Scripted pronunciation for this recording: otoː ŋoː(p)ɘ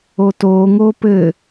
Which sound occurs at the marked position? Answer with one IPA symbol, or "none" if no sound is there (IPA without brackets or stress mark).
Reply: p